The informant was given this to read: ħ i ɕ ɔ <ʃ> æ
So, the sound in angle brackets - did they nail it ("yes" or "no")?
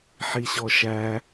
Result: yes